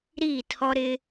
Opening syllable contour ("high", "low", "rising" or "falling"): falling